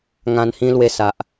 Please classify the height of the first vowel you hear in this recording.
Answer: low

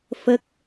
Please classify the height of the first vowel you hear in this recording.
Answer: mid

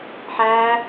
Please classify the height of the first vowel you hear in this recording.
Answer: low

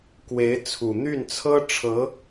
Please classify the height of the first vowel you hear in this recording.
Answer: mid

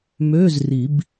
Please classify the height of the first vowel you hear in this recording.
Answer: mid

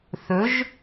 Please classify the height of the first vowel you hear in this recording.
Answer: mid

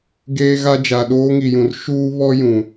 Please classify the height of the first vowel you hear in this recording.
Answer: mid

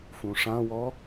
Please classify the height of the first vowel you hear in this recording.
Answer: high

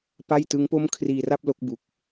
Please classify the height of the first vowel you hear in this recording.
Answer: low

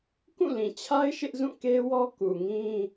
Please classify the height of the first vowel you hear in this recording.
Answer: high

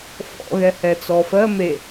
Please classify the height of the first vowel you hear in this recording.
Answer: mid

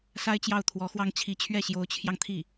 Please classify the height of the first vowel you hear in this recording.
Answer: low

